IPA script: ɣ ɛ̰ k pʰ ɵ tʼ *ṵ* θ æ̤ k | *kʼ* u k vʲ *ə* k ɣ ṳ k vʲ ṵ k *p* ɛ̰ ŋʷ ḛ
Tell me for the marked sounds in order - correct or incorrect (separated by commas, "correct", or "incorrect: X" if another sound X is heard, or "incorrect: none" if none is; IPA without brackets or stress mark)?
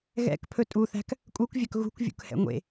incorrect: u, correct, incorrect: œ, incorrect: h